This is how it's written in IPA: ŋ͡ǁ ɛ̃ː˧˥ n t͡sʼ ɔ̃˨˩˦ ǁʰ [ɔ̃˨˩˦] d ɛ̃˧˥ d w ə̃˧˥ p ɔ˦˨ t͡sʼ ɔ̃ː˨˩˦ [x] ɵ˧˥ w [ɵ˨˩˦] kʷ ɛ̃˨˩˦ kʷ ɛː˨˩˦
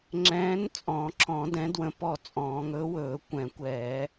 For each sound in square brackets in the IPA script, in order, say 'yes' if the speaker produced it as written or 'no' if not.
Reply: yes, no, no

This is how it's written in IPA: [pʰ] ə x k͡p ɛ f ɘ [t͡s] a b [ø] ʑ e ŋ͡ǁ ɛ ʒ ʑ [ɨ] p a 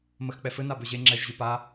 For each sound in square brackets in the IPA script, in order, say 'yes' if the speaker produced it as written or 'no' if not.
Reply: no, no, yes, yes

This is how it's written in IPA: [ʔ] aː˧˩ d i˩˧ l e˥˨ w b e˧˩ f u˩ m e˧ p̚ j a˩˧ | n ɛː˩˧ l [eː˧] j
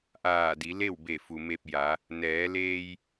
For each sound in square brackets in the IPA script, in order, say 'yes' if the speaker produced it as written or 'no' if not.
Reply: yes, yes

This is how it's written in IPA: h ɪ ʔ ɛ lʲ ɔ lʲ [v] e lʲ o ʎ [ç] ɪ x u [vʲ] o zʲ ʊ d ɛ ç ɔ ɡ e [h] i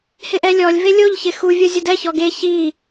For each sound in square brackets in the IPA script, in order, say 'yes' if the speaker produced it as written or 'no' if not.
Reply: yes, yes, yes, no

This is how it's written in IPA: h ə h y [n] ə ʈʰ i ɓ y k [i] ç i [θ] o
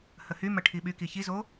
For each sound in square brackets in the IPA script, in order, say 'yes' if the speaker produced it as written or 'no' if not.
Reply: no, yes, no

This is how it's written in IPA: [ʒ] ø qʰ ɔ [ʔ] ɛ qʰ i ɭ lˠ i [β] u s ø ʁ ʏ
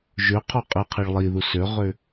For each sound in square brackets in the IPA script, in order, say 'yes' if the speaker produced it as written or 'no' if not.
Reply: yes, no, no

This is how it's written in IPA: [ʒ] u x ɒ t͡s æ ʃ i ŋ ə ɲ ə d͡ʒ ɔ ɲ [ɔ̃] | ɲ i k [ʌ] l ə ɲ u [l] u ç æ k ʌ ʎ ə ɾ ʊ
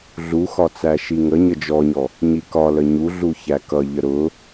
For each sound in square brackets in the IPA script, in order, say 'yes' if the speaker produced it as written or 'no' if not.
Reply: no, no, no, no

